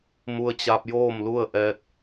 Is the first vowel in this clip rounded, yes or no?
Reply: yes